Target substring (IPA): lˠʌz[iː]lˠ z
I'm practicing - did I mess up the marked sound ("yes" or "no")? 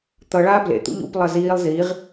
no